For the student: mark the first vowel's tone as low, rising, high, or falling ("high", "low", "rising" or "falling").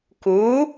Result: rising